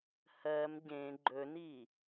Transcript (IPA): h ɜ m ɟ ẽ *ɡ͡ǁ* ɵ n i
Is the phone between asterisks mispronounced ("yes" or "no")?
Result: yes